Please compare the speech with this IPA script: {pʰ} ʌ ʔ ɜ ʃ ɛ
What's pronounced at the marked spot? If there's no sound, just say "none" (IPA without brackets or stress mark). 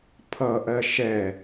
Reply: pʰ